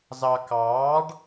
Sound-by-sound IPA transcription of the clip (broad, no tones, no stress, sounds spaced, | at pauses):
z ɑ k ɑː ɖ